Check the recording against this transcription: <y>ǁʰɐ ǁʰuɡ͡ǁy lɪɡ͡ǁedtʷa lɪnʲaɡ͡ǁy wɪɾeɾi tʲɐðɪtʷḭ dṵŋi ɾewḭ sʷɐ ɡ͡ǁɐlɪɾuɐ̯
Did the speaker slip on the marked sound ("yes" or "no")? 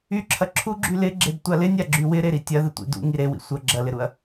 no